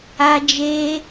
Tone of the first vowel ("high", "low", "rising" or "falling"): high